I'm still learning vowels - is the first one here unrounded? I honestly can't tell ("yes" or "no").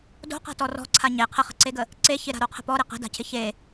no